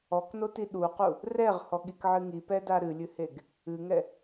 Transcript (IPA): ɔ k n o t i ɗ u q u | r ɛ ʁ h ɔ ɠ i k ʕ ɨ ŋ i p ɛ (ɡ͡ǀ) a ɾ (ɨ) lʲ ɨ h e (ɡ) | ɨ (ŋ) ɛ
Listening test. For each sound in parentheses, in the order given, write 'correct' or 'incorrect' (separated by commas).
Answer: incorrect, correct, correct, correct